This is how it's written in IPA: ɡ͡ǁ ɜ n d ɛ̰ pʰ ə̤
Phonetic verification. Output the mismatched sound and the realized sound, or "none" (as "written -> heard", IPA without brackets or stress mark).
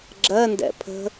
none